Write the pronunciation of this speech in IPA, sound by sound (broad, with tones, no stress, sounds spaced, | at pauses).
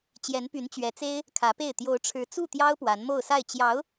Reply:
t͡ɕ j ɛ˧˥ n p y˧˥ n t͡ɕ ɥ ɛ˧˥ t͡s e˥ ɪ̯ | kʰ ä˧˥ p e˥˩ ɪ̯ t̪ j o˧˥ ʊ̯ ʈ͡ʂʰ ɻ̩˧˥ t͡s u˥˩ t̪ j ɑ˥ ʊ̯ p w a˧˥ n m o˥˧ ʊ̯ s a˥˩ ɪ̯ t͡ɕ j ɑ˧˥ ʊ̯